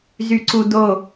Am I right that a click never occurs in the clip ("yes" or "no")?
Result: no